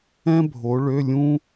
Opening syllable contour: high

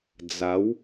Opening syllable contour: rising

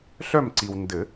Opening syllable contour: falling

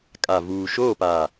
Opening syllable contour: low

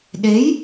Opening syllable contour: rising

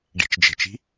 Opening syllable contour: low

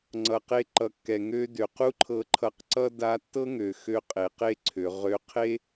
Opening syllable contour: low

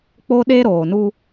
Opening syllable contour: high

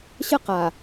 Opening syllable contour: falling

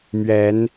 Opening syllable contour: rising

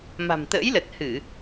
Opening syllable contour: low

